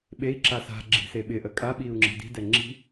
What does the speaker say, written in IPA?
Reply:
ɓ e i̯ ǁ a s a̤ ɡ͡ǁ i̤ s e ɓ ɪ ʔ ə kʼ a ɓ i u̯ ŋ͡ǁ i̤ d i̤ d ɛ ŋ͡ǁ i̤

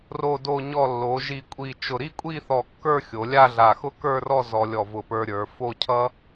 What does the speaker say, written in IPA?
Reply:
r o˧˩ d o˧˩ ɲ ɔ˧˩ lː o˩˧ ʒ i˧˩ kʷʼ i˧˩ t͡ʃ ʊ˧˩ ɾ i˥˧ kʷʼ i˥˧ θ ɔ˧˩ kː ə˞˥˧ xʲ o˩˧ lʲ a˥˧ ɮ a˧˩ x ʊ˥ k ə˞˥˧ r ɔ˥˧ z ɔ˧ lʲ ɔ˧˩ v ʊ˧˩ p ə˞˧ ɾʲ ə˞˩˧ f o˥˧ cʰ ʌ˥

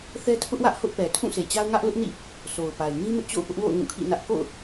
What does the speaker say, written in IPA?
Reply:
θ ɛ˦ tʰ ʊ˦ ʔ w ä˦ ʔ h ʊ˦ ʔ p ɛ˨ tʰ ũ˦˨ sʰ e˨ t͡ɕ a˦ ʊ̯ ŋ ä˦ ʔ l ʊ˦ ʔ n ḭ˦˨ | sʰ o˨ ʊ̯ p a˨ ɪ̯ ŋ ĩ˦ m ɪ˦ ʔ t͡ɕ o̰˦˨ ʊ̯ p ʊ˦ ʔ w o̰˦˨ ʊ̯ ŋ ũ˦˨ kʰ ḭ˦˨ n ä˦ ʔ k o̰˦˨ ʊ̯

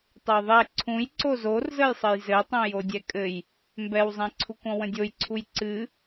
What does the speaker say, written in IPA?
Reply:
tˤ ɘ j ðˤ ɛ ǀʰ ũ j ǀ o z o r z ə j sˤ ɘ j z ɘ tˤ õ j o dʲ ɛ kʼ ɘ j | m b ɛ w zˤ ɛ̃ ǀʰ u kʷ ɔ̃ w ə̃ dʲ o j ǀʰ u j ǀ ɨ

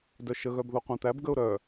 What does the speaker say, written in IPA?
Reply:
d œ ʃ ə ɣ œ b ð o qʷ ã t̪ æ b ɡ ə ʊ̯ ɾ œ

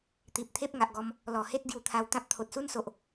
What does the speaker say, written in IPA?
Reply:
t̪ i˨ p̚ t̪ʰ e˦ p̚ ŋ a˨ ʔ ɡ ɔ˧ m | l ɔ˨˩ h e˦ t̚ ɡ j u˧ t̪ʰ a˧ w t̪ ã˦ p̚ t̪ʰ o˨ t̚ s u˦ n s o˨ ʔ

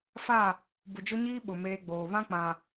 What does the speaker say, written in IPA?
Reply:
f a˦˨ | b ʊ˨ d͡ʒ ʊ˦ ɲ iː˦ ɓ ʊ˨ m eː˦ ɡ͡b oː˨ β ã˦ k͡p ã˨

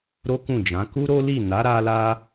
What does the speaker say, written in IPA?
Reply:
ɾ o˦ k ũ˦˨ d͡ʒ ã˨˦ k u˦ ɾ o˦ l i˦˨ n a˨˦ ɾ a˧ l a˧

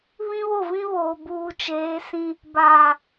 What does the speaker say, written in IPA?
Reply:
β ĩ˦ β o˦˨ v ĩ˦ β oː˨ b uː˨ t͡ʃ eː˨˦ s ĩ˦ | b a˨

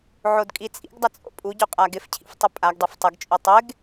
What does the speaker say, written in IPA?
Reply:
ʕ o d kʼ i t͡sʼ ḭ ɡ dˤ ə t͡sʼ o̰ pʼ u ɟ u qʼ a ɡ ɪ f cʰ ḭ f tˤ ɪ pʼ a ɡ dˤ o f tˤ ə ɡ t͡ʃʼ u tˤ ɪ ɡ

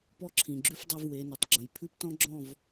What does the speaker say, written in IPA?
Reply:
p ɔ˦ ǁʰ ĩ˨ ɡ͡ǁ ʉ˦ f dˤ u˧ v w e˨˦ n ʉ˨ tˤ ɡ͡ǁ ə̃˨ j pʰ ʉ˦ p t ɔ̃˦ ɡ͡ǁ ɔ̃˦˨ v

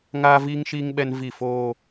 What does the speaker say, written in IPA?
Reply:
ŋ aː˦ v iː˦ ŋ ʃ iː˦ ŋ ɓ ɛ˦ n v i˦˨ f oː˦

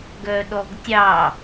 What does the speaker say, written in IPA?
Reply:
ɡ œ ɗ ɔ ɡ tʲ ɑ

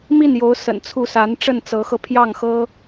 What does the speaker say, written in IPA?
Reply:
m i˥˩ n j o˧˥ ʊ̯ s ə̰˨˩ n t͡sʰ u˥˩ s a˧˥ n ʈ͡ʂ ə˥˩ n t͡s ɤ˧˥ x ɤ˧ pʰ j ɑ˥˩ ŋ x ɤ˥

